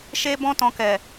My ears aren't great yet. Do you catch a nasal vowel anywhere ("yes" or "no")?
yes